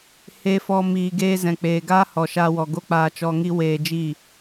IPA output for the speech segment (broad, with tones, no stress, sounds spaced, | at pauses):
h e˦ f ɔ˦ m iː˧ ɡ eː˧ z ɛ̃˨ k͡p eː˨ ɡ aː˦ h ɔ˨ ʃ aː˧ w ɔ˨ ɡ o˦ k͡p aː˧ t͡ʃ ɔ˧ ŋ i˦ w eː˧ d͡ʒ iː˦˨